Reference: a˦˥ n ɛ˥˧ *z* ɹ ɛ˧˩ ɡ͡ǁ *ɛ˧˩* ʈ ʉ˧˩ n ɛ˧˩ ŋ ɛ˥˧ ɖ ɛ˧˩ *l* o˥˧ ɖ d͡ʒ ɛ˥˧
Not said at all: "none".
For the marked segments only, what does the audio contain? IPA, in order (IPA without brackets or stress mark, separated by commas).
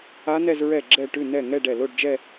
z, ɛ˧˩, l